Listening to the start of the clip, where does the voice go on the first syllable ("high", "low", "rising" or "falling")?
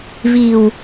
low